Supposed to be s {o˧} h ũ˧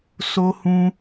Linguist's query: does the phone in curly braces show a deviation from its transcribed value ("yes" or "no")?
no